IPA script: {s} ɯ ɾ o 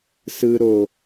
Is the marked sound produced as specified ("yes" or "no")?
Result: yes